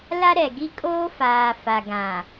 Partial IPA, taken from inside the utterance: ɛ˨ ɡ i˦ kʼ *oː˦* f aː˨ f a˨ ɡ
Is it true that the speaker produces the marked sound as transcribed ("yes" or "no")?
yes